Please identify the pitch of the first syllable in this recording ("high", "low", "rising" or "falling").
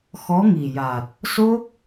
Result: rising